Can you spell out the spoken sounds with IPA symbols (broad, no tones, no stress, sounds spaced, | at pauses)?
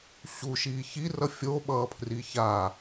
ɕ u ʃ iː ç i r ʌ fʲ o ɓ ʌː pʰ r i ç a